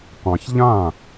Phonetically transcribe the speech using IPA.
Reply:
qʷ ɑ̃˨ ç ʎ ã˥˩

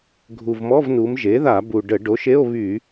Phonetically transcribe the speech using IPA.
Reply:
ɡʱ u˨˩ v m ɔ˧˥˧ v n u˩˧ m ʒ e˩˥ ð a˧˩˧ b u˨˩ ɖ ə˧˩˧ ɖ o˩˥ ʃ e˧˥˧ o̯ β y˧˩˧

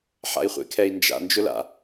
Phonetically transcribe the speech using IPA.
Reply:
ħ a̰ i̯ χʷ ḛ kʰ ɛ i̯ n d͡ʒ a̰ n d͡ʒ ʊ l a̰

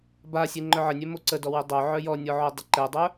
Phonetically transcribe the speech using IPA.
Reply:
b a sʲ e ŋ͡ǃ œ ʕ ə nʲ œ m o ǀ ə d ɔ w e dˤ o ʕ œ j ɔ nʲ ɔ ʕ o dˤ ə ǃ ɛ dˤ œ

